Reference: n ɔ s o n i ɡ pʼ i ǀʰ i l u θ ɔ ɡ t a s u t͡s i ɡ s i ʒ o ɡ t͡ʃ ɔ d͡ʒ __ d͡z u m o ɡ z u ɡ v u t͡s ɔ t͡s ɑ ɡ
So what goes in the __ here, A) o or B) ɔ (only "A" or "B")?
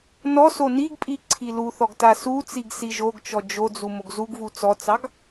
A